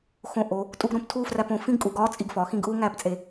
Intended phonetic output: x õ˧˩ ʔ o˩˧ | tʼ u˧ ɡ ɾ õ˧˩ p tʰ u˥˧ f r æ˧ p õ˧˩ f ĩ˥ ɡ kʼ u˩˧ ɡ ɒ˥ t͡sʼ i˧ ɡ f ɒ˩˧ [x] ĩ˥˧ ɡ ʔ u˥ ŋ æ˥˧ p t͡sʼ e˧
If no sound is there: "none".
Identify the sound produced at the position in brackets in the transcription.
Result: x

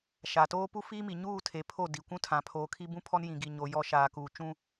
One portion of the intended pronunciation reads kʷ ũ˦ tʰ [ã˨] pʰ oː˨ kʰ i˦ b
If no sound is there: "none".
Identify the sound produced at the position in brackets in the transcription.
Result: ã˨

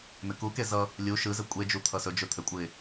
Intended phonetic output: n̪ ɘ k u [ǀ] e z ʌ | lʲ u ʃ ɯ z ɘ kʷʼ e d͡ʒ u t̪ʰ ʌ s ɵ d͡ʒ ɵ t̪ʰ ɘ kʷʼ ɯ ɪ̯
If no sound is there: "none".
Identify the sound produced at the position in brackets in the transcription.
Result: k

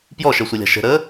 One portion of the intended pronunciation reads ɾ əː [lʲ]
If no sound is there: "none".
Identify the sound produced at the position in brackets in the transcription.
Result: none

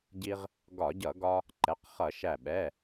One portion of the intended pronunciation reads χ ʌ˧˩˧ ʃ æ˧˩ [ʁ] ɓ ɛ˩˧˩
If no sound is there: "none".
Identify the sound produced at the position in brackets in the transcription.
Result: none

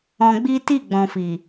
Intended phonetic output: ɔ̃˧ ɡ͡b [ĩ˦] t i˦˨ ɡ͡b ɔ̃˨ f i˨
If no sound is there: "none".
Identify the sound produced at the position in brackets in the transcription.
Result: i˦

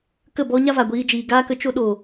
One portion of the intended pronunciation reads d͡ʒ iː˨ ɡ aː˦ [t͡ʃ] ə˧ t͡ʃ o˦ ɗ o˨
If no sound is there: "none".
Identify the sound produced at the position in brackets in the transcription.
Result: k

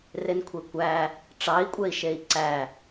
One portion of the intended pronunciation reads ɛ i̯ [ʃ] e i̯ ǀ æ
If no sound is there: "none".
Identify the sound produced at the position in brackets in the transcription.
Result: ʃ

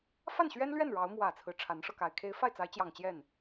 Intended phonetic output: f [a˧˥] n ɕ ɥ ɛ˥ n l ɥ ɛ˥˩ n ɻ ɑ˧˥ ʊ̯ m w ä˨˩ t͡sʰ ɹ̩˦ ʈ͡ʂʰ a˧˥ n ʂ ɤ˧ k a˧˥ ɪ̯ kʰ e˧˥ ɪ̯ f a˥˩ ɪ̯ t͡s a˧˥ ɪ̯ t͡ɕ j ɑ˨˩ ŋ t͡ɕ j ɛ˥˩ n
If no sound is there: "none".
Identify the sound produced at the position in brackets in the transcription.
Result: a˥˩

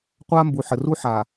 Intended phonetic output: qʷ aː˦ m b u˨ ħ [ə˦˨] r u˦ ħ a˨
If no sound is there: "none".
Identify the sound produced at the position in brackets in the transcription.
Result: ə˨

